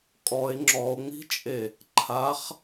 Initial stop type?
ejective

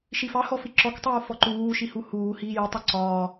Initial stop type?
click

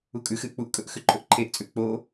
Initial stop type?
ejective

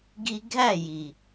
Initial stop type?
plain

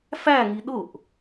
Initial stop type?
implosive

